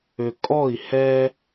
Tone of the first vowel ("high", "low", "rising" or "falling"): low